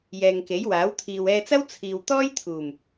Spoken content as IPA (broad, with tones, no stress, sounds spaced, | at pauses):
j ɛː˨ ŋ k e˨˥ j w aː˨˥ w t̪ʰ iː˨ w ɛː˧ t͡s ɐ˥ w t͡sʰ iː˨ w t̪ ɔː˥ j t̪ʰ uː˨˩ m